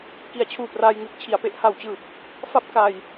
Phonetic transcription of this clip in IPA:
k i˨˩ a̯ t͡ɕʰ uː˨˩ p r aː˧ j ŋ ɯː˨˩ k̚ t͡ɕʰ i˨˩ a̯ p e˥˩ ʔ h a˨˩ w t͡ɕ ɯː˨˩ p̚ | f a˦˥ p̚ k a˧ j

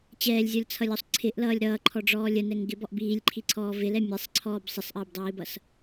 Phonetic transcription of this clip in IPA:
t͡ɕ ɛː lʲ zʲ ɔ lʲ t͡sʰ ʌ lʲ ɔ sˤ ǀʰ ɪ ʔ l ʌː lʲ ɾ ʌː ǃʰ ɔ ɖ͡ʐ ɔː lʲ ə n ɛ ŋ ɡ ɪ b ɔ ʔ b iː lʲ ǃʰ i ǀʰ ɔː v ɪ l ɛ mʲ ɛ sˤ ǀʰ ɔː b sˤ ɪ sˤ ʔ əː b dˤ iː b ʌ s

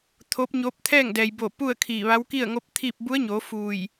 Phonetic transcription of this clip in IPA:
t̪ʰ o˧˥ p̚ ɲ oː˧˥ p̚ t̪ʰ ɛː˥˨ ŋ d ɛː˩ j b o˧˩ p u˥˨ ə̯ kʰ iː˧˩ ʋ a˧˥ w k i˥˨ ə̯ ŋ o˧˥ p̚ t̪ʰ iː˥˨ p̚ b u˧˥ ə̯ ɲ oː˩˧ f uː˧˩ j

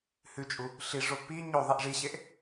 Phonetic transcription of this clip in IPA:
h ʉ t͡ʃʼ u | ɬ i ʐ o p i ɲ o ðˤ i ʔ ʐ i ɕ e ʔ

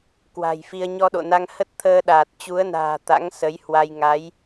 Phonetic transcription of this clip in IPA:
k w a̤˨˩ j f i˧ ə̯ ɲ ɔ˧ ɗ o̰˧˨ n a˧ ŋ h ə˦˥ t̚ t̪ʰ əː˧ ɗ aː˨˩ t̚ t͡ɕ u˨˦ ə̯ n a̤ː˨˩ t̪ a̰˧˥ ŋ s ə˨˦ j h w a˧ j ŋ a˨˦ j

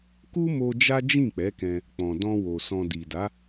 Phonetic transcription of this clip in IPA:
k u˦ m o˧ d͡ʒ a˦ d͡ʒ ĩ˦˨ k͡p ɛ˨˦ k ɛ̃˧ | k͡p ɔ̃˨ d ɔ̃˧ w o˨ s ɔ̃˨ d i˨ d a˨˦

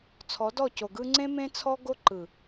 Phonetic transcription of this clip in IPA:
t͡sʰ ɔ˨˦ d ɔ˦˨ c o˨ ɡ ɯ˦ ŋ͡ǀ ẽ˦ m ẽ˦ t͡sʰ ɔ˦ ɡ o˦ ǃ ɯ˨

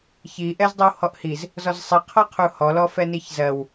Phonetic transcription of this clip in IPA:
ç i ʔ ɛ z dˤ i w h ɔ ʔ h i z | z ɔ z sˤ i qʰ ɔ qʰ u h ɔ l ɔ f ɛ n i ç z ɜ w

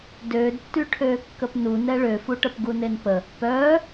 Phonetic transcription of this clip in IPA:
d øː d tː y ʈʰ øː kː ə p n u n ɛ ɭ ø f u ʈ ə p ɡ u n e n p ə | p œː

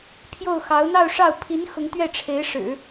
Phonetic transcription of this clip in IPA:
pʰ j o˥˩ ʊ̯ x ɑ˧˥ ʊ̯ n̪ ɑ˥˧ ʊ̯ ʂ ɑ˥˩ ʊ̯ pʰ i˧˥ n x ʊ˧˥ ŋ t̪ ɥ ɛ˥˩ ʈ͡ʂʰ e˧˥ ɪ̯ ʂ ɻ̩˨˩˦

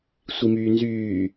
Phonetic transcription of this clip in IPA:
sʷ i m yː n z yː

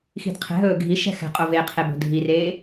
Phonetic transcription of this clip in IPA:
x i̤ d qʰ ɛ̤ ɦ ɵː ɡʱ i ʃ ɛ̤ x ɛ̤ qʼ o v e qʰ e b o̤ dʱ i r eː

